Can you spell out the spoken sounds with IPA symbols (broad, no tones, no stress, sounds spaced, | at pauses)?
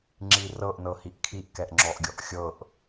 ŋ͡ǁ i r ɤ ʔ n ɤ h i ʔ kʰ i ʔ k ɛ ʔ ŋ͡ǁ ɔ ʔ ɡʲ ɔ ʔ xʲ ɤ ʔ